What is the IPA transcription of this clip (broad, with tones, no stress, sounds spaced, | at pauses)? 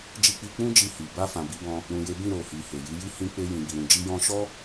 d͡ʒ i˧ k͡p i˧ k͡p ũ˦ d͡ʒ i˧ h i˨ b a˧ f ã˨ b i˧ b ɔ̃˧ | ɾ ũ˨ j e˨˦ b ĩ˦˨ ɾ o˨ h i˨ h e˨ j i˨˦ j i˦ h ĩ˧ k͡p e˧ j ĩ˨ b i˨ ɾ ũ˨ d͡ʒ i˧ j ɔ̃˧ ʃ ɔ˦